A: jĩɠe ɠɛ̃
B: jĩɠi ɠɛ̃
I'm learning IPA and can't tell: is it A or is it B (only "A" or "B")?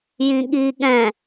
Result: B